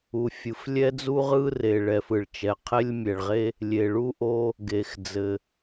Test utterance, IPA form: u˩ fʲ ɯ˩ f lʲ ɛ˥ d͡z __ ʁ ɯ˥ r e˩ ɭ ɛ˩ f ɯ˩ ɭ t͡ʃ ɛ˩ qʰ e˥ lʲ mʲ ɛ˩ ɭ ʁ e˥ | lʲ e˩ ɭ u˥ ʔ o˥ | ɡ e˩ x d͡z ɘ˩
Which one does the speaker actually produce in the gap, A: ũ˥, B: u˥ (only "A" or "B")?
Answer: B